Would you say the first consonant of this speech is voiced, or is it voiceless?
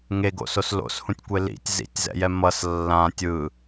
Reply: voiced